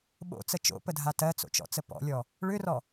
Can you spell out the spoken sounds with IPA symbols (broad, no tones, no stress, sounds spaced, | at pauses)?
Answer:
ɓ o̰ t͡s ə t͡ʃ o̰ p ə dʱ a t ɜ t͡s o̰ t͡ʃ ɔ̰ t͡s ə p ɔ̰ lʲ ɔ | ɭ ʏ r ɔ